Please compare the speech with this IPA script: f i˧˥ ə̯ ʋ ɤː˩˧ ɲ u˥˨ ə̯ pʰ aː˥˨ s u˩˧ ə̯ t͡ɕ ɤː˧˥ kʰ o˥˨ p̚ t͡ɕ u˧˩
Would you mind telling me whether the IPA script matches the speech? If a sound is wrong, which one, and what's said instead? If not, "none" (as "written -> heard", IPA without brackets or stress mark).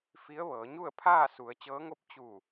kʰ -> ŋ